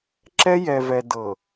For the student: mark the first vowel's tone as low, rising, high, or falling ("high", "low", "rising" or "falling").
high